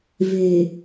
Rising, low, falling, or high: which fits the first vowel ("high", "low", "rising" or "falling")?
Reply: low